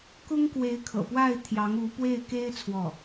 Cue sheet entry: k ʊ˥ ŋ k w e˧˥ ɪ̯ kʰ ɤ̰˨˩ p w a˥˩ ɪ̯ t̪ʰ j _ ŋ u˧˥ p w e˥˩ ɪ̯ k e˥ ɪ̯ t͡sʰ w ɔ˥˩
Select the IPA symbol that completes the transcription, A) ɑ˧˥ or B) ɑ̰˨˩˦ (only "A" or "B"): A